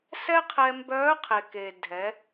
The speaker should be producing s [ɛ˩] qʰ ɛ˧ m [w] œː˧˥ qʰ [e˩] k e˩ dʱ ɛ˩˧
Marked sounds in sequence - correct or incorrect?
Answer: incorrect: ɛ˥, incorrect: b, correct

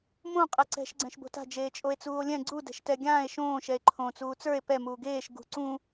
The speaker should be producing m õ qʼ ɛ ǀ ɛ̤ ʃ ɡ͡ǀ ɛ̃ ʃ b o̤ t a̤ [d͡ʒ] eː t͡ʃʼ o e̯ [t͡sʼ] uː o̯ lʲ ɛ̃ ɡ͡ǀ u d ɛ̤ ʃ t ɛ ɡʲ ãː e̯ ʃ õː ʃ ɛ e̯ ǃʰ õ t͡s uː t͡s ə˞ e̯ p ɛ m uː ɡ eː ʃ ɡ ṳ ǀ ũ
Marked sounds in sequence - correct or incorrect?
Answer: correct, incorrect: t͡s

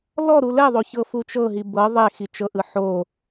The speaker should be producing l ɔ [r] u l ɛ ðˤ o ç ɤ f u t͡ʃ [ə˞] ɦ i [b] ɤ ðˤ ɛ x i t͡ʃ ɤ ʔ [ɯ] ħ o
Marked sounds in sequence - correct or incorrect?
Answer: incorrect: ɾ, incorrect: ɤ, correct, correct

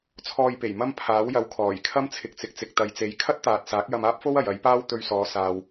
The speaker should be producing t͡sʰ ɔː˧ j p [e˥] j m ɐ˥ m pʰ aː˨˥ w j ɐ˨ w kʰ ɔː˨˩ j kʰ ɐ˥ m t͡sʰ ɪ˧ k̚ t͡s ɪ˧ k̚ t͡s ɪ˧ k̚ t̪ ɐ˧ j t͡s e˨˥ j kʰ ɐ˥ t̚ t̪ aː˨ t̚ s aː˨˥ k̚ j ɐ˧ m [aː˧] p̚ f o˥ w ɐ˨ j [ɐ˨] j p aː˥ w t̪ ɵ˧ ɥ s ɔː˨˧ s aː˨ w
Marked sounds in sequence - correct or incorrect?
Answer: incorrect: e˨˩, incorrect: aː˥, incorrect: ɐ˨˥

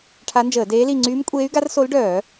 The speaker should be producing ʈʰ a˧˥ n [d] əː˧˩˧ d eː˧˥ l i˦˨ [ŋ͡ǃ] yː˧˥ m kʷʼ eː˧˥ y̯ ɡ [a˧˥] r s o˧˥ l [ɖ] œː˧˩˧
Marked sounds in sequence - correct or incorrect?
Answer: incorrect: d͡ʒ, incorrect: ŋ͡ǀ, correct, correct

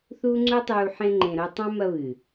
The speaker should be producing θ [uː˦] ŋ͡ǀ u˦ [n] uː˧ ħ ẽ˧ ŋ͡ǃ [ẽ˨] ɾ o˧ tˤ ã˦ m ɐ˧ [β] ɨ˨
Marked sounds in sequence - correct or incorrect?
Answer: correct, incorrect: tˤ, correct, correct

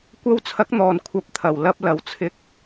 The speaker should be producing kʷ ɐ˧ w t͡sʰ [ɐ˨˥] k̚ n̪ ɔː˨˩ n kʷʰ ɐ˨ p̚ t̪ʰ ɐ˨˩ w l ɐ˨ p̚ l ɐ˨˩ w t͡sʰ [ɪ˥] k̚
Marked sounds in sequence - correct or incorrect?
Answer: correct, incorrect: ɪ˧

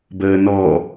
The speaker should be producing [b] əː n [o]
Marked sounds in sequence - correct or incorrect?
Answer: correct, incorrect: ɔ

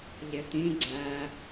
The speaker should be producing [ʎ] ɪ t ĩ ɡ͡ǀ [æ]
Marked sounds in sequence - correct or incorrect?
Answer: correct, correct

